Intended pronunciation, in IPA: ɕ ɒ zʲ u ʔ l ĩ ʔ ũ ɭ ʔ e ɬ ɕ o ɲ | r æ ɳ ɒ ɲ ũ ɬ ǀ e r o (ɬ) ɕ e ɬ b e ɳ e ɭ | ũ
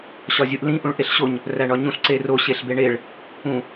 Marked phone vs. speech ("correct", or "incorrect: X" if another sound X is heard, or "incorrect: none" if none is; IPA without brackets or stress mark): incorrect: none